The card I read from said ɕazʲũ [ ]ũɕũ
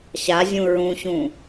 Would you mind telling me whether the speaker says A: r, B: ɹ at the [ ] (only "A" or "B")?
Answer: B